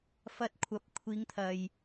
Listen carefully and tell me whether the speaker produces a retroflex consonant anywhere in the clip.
no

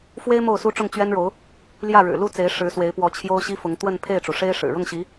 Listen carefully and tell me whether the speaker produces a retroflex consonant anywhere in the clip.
yes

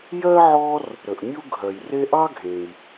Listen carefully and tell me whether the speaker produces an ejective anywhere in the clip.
no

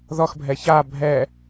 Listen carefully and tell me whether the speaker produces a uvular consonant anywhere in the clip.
no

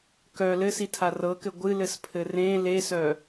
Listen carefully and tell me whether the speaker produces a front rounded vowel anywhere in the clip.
yes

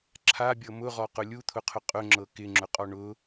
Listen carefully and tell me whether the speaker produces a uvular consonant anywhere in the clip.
yes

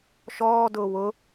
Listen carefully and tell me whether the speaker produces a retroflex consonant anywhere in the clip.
no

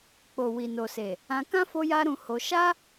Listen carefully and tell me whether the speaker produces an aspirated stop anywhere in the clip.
no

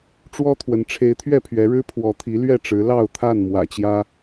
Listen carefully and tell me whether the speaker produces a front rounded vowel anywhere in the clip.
no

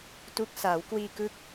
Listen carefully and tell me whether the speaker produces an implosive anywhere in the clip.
no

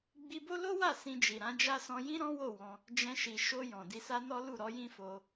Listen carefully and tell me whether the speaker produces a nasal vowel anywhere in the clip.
yes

